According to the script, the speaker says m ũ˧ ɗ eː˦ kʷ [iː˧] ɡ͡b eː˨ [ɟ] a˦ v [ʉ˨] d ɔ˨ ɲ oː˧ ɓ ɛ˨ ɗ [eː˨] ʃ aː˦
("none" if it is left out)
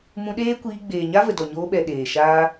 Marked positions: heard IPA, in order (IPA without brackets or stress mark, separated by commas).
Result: iː˧, ɲ, ə˨, eː˨